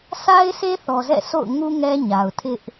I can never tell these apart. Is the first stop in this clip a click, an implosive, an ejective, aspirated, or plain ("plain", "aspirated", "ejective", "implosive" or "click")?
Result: aspirated